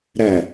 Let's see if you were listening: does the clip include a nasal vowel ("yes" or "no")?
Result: no